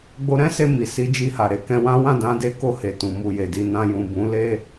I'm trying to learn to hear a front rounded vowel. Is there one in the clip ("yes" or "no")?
no